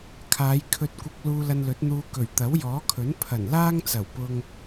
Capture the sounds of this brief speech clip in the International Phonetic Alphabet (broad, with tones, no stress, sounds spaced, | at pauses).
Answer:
kʰ aː˨˧ j kʰ ɵ˧ t̚ kʷ ɪ˧ k̚ l uː˧ l ɐ˧ n l ɵ˨˥ t̚ n̪ uː˧ k ɵ˨˩ ɥ t̪ ɐ˨˥ w j ɔː˨˥ kʰ ɵ˨˥ n pʰ ɐ˨˩ n l aː˥ ŋ t͡s ɐ˨˩ w p ʊ˧ ŋ